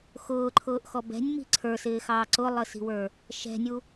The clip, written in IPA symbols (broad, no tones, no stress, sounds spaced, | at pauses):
x ʊː ǃʰ ʊː ʔ x ɔ b ɛ̤ nʲ m i̤ ǀʰ ə˞ s ɪː x ɑː ǀ ʊ lˠ ə s i̤ w ə˞ | ʃ ɛ̤ nʲ u